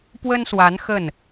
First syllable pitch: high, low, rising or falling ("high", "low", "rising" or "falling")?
high